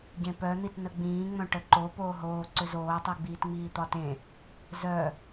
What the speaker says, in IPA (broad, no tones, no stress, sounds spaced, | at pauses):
ɟ ẽ p œ n̪ i t n ə ɡ͡b ĩː ŋ͡m œ̃ ʈ ə ǃ o p oː ɦ oː ǀ ʏ z oː tˤ i ɡ͡b iː t ŋ͡m iː t̪ ɒ t ẽ | z œ